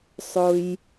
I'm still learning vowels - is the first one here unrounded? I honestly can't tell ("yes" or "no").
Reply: no